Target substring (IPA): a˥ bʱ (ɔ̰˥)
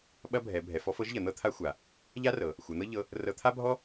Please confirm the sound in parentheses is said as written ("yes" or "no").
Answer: no